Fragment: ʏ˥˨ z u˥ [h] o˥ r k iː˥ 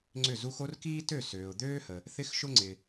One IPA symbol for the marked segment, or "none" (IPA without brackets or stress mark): x